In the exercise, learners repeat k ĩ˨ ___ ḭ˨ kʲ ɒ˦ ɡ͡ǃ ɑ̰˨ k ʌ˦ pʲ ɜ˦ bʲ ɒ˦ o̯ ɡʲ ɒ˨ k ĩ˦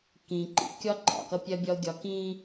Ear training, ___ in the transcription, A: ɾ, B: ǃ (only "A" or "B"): B